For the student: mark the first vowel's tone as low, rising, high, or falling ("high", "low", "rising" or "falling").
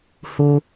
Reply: low